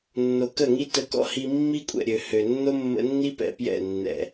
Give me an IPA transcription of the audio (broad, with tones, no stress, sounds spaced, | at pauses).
nː o˨ k ə˦˨ ŋ i˦ t ə˧ k ɔ̰˦ h i˧ mː i˦ kʷʼ ɛ̰˨ ɾʲ ø˨ h ø˨ nː o˦ mː ə̰˧ nː i˦ p ɛ̰˨ p j ɛ̰˦˨ nː ɛ̰˨